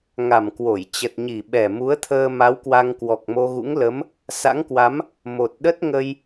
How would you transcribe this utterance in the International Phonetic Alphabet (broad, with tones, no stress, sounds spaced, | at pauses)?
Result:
ŋ a˨˩ m k w o˧˩ j t͡ɕ ə˨˩ t̚ ɲ i˨˩ ɓ ɛ˨˩ m u˨˦ ə̯ t̪ʰ əː˧ m a˨˦ w k w a˧ ŋ k w ɔ˨˩ k̚ m o˧ ɣ ṵ˧˥ ŋ l ə˨˦ m | s a̰˧˥ ŋ k w a˨˦ m | m o˨˩ t̚ ɗ ə˦˥ t̚ ŋ ə˧ j